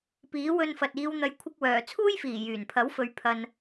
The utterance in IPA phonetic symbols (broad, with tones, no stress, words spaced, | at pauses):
piː˨˥wɵ˧nfɐ˨t̚ iː˨˧wn̪ɐ˨˧jkʷʰɪ˧k̚wœː˨˩ t͡sʰuː˥jfiː˨˩ jyː˨˩npʰɐ˨˥wfɵ˨˧ɥ pʰɐ˧n